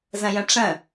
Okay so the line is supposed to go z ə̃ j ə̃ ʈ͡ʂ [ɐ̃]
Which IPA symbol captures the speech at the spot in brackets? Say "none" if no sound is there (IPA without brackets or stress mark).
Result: ə̃